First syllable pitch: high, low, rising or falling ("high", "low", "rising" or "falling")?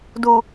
low